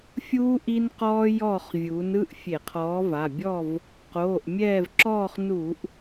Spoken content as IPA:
fʲ uː˦ ʔ i˦ n q ɔː˦ j ɔː˦˨ χ vʲ uː˩˧ n ɯ˩˧˩ ʔ fʲ e˧˩˧ qʰ ɔː˨˥ v a˩˧˩ bʲ ɔː˦˨ v | q oː˩˧˩ ʔ mʲ ɛː˦˨ v ǁ ɔː˦˨ χ n uː˧˩˧ ʔ

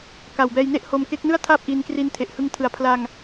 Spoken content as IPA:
k a˨˩ w b ɛː˧ j n e˥˩ ʔ h o˧ m k e˦˥ k̚ n ɯ˥˩ a̯ tʰ aː˥˩ p̚ ʔ iː˧ n k r i˧ n tʰ e˨˩ ʔ h ɯ˧ ŋ tʰ ɯ˩˦ a̯ pʰ l a˧ ŋ

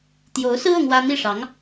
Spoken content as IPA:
t̪ j o˧˥ ʊ̯ s ɹ̩˥ ɤ˥ ŋ w ä˥ n̪ i˥˩ ʂ ɑ˧˥ ŋ

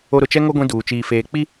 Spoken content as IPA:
o˦ ɾ ʊ˨ t͡ʃ ɛ˦ ŋ o˦ ɡʷ ĩ˦ d uː˨ t͡ʃ iː˨ f eː˨ k͡p i˦

